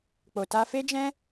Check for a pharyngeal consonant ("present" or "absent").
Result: absent